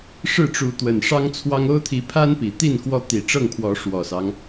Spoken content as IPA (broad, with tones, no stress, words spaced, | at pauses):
ʂɻ̩˥˨ʈ͡ʂu˨˦ t̪wə˨˩n ʂɑ˦ŋt͡sʰwɑ˦ŋ o˦ʊ̯t̪ʰi˨˦ pʰa˦n pi˨˩ t̪i˥˨nkwɔ˦t̪i˨˩ ʈ͡ʂɤ˥˨ŋpʰwɔ˨˦ ʂwɔ˨˩sɑ˦ŋ